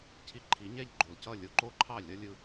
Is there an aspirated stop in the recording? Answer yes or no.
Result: yes